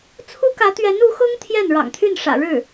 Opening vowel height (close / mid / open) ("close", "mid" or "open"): close